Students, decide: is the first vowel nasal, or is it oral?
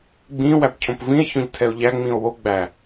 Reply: nasal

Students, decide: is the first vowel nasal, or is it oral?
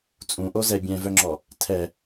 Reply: nasal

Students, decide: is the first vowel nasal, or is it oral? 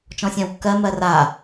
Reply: nasal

